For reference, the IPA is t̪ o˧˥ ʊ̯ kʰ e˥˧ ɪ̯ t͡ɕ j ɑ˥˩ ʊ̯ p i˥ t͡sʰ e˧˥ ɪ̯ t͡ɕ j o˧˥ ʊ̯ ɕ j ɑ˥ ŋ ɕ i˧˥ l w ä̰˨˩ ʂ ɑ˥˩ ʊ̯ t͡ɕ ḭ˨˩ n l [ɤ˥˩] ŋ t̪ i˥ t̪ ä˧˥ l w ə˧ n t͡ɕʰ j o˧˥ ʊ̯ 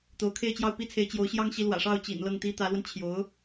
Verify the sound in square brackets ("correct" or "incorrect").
correct